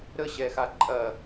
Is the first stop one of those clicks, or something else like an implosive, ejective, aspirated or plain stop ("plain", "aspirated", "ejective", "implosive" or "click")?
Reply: click